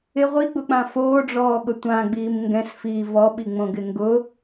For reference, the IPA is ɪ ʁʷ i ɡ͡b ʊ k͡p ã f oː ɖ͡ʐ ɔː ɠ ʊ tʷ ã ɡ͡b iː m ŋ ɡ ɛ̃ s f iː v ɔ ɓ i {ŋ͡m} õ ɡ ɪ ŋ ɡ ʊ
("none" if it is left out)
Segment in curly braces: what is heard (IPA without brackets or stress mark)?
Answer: ŋ͡m